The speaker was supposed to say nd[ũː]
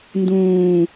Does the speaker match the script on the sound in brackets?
yes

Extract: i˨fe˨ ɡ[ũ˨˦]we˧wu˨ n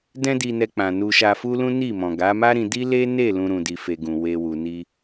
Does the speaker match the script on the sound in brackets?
no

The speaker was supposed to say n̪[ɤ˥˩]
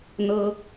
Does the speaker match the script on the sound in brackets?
no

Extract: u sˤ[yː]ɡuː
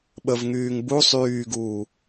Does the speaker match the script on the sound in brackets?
yes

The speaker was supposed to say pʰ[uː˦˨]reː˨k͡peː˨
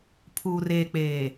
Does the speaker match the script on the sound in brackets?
no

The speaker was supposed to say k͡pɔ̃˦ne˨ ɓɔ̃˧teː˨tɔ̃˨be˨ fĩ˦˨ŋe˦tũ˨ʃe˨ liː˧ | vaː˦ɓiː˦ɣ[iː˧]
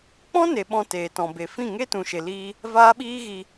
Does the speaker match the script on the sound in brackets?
no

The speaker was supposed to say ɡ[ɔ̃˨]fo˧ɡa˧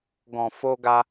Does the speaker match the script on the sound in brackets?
yes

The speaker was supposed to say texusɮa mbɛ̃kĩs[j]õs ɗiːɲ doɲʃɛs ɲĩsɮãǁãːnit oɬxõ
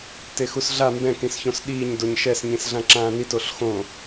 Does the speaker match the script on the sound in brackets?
no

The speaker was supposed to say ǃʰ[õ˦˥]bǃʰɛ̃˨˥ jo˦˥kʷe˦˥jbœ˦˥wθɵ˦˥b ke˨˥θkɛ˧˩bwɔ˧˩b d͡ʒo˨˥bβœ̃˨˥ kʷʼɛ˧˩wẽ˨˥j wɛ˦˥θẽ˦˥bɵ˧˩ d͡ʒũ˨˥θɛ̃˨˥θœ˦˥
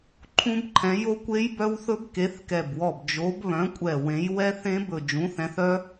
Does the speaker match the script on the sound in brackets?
no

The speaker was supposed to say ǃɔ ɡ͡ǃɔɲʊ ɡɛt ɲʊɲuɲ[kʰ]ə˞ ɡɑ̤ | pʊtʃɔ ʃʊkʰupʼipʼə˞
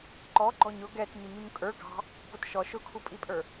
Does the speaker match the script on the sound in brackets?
no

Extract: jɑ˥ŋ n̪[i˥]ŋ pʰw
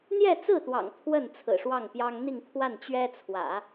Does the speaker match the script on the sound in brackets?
no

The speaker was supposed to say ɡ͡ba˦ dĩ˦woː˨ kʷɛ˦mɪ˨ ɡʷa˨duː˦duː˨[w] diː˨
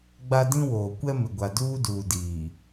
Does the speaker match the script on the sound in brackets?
no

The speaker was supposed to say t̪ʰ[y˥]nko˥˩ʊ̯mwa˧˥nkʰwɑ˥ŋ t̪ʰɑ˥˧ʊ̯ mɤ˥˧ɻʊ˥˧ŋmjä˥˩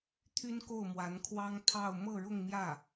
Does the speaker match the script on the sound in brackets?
yes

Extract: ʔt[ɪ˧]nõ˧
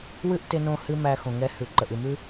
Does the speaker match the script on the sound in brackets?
yes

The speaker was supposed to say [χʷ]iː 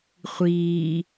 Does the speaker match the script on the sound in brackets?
yes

